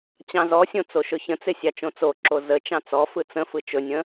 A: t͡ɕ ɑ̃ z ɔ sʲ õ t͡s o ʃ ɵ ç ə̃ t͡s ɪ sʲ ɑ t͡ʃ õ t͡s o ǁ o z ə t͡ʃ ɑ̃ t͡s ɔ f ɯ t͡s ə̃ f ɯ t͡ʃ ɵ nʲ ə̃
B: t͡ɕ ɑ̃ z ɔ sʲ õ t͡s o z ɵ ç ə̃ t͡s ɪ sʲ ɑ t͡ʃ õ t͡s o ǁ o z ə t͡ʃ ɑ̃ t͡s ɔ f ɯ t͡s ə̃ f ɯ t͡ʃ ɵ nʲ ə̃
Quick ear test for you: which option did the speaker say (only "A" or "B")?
A